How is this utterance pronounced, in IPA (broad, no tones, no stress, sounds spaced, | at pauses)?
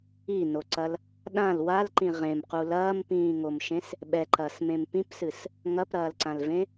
i n o ǀ ɐ l | ɗ ã l w a l ǃ ĩ ʁ ẽ m q u l ɐː m p ĩː ŋ o m ʃ ẽ s | ɓ ɛ ǃ ɐː s m ẽ m p ĩ p s ɨ s | ŋ ɐ p ɾ ɐː l ǀ ã l v ẽ